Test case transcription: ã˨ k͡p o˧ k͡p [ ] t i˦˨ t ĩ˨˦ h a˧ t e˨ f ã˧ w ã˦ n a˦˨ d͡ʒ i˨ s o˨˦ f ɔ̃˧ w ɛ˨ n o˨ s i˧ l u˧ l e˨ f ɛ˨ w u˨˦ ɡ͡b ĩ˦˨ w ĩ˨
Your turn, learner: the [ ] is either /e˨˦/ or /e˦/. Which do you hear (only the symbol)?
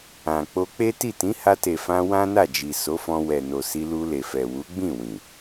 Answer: e˦